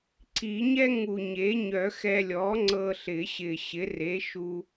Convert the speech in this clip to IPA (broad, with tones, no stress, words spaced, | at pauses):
ǀʰi˨˩˦ɲɛ˥ ŋu˨˩ɲe˩˥ ɲœ˨˩˦xɛ˧lʲɔ˩˥ ŋ͡ǀɤ˧ɬɪ˨˩˦ɕɪ˨˩ ɕɪ˩˥re˩˥ʃu˧